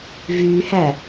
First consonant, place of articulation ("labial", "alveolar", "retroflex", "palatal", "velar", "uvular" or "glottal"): labial